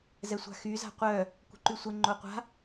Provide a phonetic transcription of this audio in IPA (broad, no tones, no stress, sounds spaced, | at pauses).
z ɛ sʷ a̤ x y z a̤ qʷ œ | kʷ ə̤ ǃ y sʷ ə ŋ͡ǃ o qʷ a̤